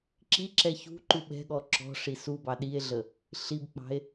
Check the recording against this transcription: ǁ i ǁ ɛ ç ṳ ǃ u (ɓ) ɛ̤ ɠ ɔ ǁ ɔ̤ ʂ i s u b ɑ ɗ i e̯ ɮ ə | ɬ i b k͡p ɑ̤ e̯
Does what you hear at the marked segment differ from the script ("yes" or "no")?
no